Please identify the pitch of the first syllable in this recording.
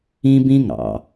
high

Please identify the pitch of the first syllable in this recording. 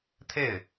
falling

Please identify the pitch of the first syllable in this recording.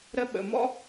high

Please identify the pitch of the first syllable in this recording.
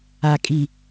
low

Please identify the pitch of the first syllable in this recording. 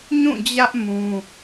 falling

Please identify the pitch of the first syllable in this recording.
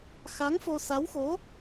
rising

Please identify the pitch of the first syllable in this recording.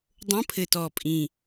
rising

